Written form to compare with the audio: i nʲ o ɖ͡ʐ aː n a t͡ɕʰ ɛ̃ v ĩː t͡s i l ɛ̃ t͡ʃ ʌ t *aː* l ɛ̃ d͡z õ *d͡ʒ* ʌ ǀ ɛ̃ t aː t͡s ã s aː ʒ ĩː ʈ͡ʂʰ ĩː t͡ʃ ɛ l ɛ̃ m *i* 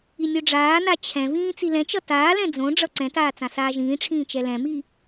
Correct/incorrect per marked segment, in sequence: correct, incorrect: ɖ͡ʐ, correct

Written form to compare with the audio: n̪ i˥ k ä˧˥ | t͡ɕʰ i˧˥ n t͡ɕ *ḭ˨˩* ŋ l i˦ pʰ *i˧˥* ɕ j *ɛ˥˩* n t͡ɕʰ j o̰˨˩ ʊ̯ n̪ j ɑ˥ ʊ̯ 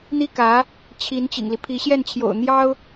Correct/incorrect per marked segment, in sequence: correct, correct, correct

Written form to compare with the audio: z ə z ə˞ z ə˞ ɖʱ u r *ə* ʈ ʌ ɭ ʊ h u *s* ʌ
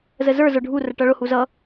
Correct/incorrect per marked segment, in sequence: correct, incorrect: z

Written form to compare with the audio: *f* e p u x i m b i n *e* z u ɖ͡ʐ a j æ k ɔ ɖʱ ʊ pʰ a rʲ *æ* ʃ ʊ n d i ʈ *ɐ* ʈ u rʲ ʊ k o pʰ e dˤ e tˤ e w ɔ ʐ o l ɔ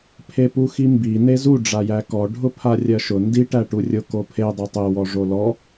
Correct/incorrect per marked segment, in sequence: incorrect: pʰ, correct, incorrect: ɜ, incorrect: æ

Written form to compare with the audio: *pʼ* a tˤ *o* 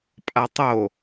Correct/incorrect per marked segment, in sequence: correct, correct

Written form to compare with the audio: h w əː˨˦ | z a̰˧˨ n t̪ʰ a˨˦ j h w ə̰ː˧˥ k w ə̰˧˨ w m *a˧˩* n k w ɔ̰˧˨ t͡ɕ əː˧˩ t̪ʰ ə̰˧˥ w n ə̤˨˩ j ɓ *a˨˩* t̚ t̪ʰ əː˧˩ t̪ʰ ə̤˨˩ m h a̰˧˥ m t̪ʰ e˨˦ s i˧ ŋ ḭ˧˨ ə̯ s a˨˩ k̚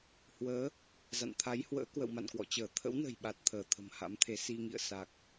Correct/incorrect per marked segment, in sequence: incorrect: a̰˧˨, correct

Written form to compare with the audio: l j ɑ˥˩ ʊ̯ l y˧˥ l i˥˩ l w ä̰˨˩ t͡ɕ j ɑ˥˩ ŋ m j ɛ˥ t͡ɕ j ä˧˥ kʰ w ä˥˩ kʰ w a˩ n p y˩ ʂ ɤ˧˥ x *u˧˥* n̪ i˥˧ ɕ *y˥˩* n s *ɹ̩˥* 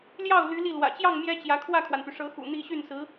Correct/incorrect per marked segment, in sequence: incorrect: ṵ˨˩, correct, incorrect: ɹ̩˧˥

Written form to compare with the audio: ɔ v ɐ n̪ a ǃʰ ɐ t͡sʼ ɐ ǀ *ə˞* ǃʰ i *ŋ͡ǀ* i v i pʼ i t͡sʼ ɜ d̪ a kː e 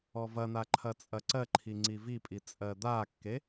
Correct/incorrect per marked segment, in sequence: incorrect: ɜ, correct

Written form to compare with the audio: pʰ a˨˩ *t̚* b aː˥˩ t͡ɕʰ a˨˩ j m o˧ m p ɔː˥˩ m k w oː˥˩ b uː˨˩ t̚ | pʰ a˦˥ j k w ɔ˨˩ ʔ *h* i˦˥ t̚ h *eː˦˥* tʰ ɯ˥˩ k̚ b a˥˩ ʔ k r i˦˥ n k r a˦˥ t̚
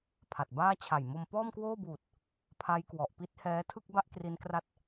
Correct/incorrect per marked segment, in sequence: correct, incorrect: p, incorrect: ɛː˦˥

